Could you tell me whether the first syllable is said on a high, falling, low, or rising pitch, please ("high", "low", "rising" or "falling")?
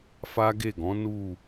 high